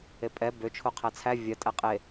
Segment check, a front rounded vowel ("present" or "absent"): present